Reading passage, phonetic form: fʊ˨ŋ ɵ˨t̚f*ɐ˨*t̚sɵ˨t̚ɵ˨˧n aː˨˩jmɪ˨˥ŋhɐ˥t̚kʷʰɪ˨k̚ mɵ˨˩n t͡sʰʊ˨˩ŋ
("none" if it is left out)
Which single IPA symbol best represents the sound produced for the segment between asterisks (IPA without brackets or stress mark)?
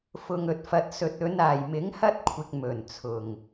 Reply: ɐ˨